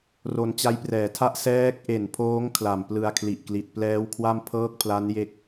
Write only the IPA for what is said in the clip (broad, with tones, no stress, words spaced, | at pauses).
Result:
ro˧nt͡ɕa˦˥jprɛː˩˦tʰa˥˩ʔ sɛː˦˥k̚ʔe˨˩npʰoː˦˥ŋ kʰla˨˩mplɯ˧a̯kʰli˨˩ʔkli˨˩t̚ plɛː˦˥wkʰwa˥˩m pʰɤː˥˩k̚pʰla˦˥nje˦˥k̚